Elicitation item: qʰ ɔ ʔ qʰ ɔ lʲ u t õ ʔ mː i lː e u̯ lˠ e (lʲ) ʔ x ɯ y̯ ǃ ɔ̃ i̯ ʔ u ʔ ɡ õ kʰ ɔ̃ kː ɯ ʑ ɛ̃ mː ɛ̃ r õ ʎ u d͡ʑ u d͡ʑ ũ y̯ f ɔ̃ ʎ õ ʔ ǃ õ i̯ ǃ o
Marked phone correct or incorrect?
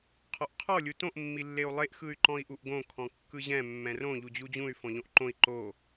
incorrect